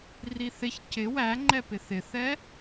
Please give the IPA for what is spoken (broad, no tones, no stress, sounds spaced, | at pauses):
r i θ ɪ ç c ɪ w æ ŋ͡ǃ ɛ p ɪ θ ɪ θ ɛ